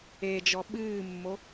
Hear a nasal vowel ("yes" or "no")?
no